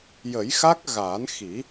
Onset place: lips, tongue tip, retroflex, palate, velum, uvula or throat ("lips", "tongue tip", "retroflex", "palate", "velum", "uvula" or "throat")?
palate